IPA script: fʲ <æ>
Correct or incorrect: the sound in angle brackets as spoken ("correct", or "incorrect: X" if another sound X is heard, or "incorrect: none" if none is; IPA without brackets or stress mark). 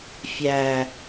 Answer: correct